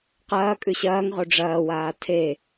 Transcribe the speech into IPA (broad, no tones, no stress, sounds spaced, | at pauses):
q ɐː kʼ ʉ ɕ ɐː ŋ ʁ o ɖ͡ʐ ɐː w aː tʰ e